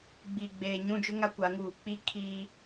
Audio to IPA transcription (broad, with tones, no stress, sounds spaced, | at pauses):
ɡ͡b iː˨ ɡ͡b eː˨ ɲ ũ˦˨ d͡ʒ ʊ˦ ŋ a˦ kʷ a˨˦ ŋ uː˨ k͡p i˦ kʰ iː˦